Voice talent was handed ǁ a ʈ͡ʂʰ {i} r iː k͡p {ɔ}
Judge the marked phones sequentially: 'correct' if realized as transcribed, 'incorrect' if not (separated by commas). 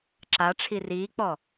correct, correct